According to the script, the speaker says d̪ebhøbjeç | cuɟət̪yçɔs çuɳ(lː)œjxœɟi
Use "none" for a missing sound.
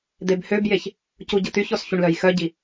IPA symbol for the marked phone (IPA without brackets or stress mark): l